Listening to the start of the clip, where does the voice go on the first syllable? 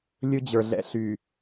high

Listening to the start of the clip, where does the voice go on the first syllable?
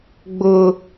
low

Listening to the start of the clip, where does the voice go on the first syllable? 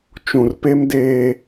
low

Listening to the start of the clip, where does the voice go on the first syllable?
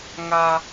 high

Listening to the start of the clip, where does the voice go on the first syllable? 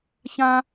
high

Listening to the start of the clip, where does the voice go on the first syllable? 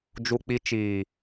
high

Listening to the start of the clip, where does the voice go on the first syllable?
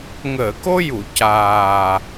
low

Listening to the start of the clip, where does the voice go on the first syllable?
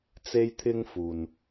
high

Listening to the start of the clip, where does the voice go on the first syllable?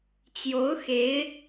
rising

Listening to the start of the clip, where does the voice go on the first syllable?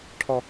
low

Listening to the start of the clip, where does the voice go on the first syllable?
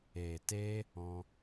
low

